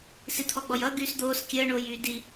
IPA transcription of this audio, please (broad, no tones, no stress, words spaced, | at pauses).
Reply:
sit̪ʰɔɡ͡bɔjʌ ɡyːsd̪oːs kʲəː ɳoːjyːdi